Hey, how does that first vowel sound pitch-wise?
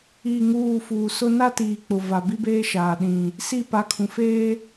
falling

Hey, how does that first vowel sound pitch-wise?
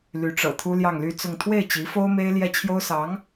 rising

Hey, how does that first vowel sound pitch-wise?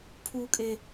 low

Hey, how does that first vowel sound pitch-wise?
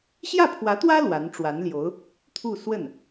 falling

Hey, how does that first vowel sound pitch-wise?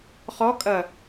rising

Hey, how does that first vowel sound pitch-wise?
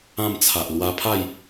falling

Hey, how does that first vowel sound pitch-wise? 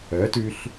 rising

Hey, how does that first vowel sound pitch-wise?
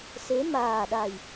rising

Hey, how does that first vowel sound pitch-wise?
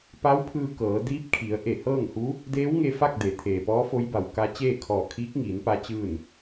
rising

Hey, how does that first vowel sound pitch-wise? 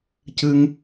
high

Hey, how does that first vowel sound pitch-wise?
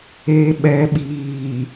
low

